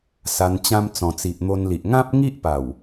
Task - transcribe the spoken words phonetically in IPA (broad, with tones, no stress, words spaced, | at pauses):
sa˧nt͡ɕã˦m t͡sɔ̃˨˩t͡si˨ʔn̪o˧nli˨ʔ ŋã˦p̚ŋi˦ʔpa˨˩w